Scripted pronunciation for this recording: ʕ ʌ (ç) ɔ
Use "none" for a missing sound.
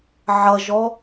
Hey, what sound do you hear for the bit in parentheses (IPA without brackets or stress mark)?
ʒ